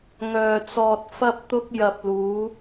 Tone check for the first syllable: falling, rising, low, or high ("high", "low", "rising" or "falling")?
low